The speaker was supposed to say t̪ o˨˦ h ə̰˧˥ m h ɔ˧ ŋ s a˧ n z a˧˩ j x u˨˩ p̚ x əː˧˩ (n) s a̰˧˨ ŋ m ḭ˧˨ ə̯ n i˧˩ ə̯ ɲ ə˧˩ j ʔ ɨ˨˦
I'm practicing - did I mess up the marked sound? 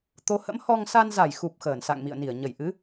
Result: no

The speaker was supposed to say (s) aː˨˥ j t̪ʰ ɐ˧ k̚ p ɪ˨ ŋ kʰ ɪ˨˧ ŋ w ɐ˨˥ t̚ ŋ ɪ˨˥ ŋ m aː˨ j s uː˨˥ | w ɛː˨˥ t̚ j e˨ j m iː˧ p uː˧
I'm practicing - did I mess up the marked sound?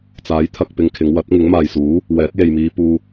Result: yes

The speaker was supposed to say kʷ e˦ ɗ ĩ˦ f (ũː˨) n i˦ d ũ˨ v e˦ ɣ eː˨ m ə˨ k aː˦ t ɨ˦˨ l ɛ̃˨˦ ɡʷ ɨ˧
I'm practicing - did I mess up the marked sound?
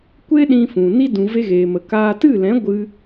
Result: yes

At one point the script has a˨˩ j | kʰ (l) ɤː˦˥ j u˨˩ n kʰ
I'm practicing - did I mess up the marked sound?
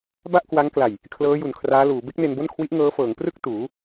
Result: no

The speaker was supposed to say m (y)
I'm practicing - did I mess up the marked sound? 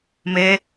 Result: yes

